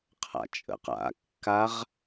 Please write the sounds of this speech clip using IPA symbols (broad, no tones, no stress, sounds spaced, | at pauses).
qʰ a̰ t͡ʃʼ ə̰ q a̰ kː a ʁ